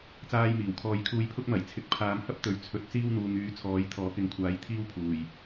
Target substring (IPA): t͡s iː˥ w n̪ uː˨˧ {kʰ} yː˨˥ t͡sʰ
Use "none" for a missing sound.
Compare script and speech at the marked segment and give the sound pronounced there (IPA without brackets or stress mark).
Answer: ŋ